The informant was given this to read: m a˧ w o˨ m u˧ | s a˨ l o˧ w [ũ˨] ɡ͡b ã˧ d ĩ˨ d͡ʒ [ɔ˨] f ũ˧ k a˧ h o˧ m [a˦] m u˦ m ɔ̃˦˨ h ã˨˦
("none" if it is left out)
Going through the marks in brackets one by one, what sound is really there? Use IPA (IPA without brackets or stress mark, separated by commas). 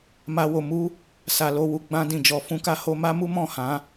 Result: u˨, ɔ˨, a˦